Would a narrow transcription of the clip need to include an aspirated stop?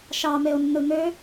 no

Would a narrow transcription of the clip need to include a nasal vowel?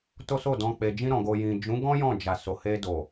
yes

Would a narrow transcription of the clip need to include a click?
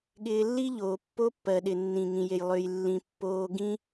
no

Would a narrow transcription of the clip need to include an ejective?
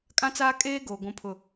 yes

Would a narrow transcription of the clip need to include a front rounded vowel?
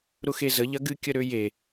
yes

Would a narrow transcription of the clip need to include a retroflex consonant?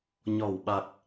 no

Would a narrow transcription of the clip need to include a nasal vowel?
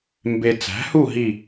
no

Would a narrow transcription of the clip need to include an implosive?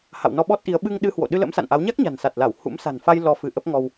yes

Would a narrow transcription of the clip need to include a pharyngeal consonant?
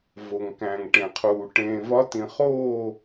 no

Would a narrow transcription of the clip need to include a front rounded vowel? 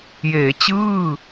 no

